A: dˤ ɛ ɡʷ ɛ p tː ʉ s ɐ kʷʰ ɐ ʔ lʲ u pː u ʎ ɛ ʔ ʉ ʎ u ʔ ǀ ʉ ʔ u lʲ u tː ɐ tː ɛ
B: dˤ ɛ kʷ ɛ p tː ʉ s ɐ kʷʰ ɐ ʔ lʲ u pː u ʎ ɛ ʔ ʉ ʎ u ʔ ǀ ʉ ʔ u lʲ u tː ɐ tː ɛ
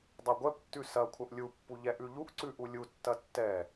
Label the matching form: A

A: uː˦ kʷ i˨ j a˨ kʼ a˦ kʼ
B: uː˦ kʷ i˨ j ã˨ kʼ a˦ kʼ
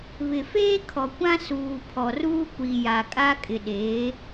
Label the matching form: A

